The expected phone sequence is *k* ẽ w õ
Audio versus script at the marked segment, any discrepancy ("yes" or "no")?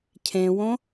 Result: yes